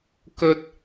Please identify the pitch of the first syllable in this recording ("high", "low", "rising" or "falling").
high